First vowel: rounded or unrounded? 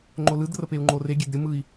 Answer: rounded